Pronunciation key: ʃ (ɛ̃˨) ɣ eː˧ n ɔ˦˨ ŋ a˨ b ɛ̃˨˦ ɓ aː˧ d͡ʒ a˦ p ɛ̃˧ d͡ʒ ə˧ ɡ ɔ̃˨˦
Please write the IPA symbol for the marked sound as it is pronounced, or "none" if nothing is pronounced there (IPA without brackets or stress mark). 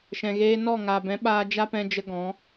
ɛ̃˨